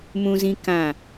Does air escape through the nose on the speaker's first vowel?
yes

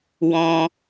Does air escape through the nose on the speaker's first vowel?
yes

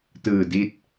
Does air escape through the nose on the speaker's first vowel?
no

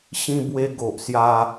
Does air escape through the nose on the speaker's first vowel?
yes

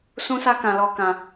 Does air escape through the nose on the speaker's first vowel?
yes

